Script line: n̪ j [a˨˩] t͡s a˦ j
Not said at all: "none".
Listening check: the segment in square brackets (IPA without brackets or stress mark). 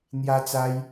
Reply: a˦